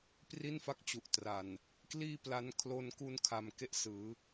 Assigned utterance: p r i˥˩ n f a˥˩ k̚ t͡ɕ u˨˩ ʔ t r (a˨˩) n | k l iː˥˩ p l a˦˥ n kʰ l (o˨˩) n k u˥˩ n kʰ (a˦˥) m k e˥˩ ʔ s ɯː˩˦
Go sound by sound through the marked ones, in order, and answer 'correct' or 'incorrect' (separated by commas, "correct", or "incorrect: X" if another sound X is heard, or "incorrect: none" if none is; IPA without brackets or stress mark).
correct, incorrect: o˥˩, incorrect: a˧